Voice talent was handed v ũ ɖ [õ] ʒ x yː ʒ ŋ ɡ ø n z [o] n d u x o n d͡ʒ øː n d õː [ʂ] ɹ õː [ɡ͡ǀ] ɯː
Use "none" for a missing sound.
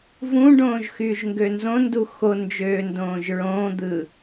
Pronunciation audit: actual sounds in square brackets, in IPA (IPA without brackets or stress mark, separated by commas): õː, õ, ʒ, d̪